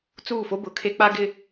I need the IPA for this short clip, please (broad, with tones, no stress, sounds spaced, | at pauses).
t͡s uː˦˨ f o˦ b ʊ˨ kʰ e˦ k͡p a˦ ɡ ɪ˦